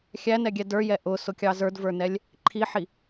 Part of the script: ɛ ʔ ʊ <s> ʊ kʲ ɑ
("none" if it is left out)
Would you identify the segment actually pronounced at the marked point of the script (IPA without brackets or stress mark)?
s